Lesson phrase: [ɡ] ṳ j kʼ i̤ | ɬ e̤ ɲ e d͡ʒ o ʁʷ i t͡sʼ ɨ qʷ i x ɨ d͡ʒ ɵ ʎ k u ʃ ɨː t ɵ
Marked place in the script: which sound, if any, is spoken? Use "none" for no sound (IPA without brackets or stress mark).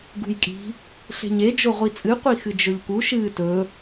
ɡ